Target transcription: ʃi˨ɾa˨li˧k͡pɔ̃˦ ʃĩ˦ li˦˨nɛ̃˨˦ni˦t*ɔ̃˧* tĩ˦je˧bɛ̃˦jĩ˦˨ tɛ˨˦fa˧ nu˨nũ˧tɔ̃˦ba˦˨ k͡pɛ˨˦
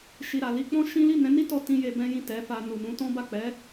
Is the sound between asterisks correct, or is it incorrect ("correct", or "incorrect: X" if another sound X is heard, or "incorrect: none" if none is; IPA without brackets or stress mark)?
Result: incorrect: ɔ˧